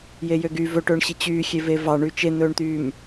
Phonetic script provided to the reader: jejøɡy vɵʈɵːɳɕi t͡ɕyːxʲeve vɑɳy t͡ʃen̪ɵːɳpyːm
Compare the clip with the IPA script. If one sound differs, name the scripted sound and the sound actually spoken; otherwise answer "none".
p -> t̪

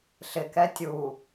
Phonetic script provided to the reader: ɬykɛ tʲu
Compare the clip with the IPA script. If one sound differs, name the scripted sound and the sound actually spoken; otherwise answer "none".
y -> ɪ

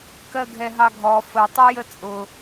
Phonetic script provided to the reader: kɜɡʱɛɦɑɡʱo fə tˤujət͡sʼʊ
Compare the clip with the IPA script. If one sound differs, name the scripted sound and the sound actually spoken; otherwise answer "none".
o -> ɔ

